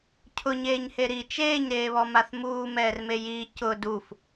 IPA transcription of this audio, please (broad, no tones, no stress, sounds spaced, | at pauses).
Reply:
cʰ ʊ ɲ eː ɲ h e ɾ i t͡ʃ eː ɲ ɾ eː β ɔ m a θ m uː m ɛː r m e j i c ʊ d u f